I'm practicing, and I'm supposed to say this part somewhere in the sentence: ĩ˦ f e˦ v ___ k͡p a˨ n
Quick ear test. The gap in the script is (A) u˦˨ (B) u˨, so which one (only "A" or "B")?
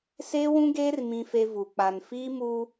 B